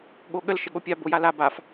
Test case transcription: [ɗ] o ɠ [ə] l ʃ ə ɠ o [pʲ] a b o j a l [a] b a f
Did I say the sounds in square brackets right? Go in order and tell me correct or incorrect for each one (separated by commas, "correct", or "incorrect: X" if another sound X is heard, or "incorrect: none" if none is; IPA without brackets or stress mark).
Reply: incorrect: ɠ, correct, correct, correct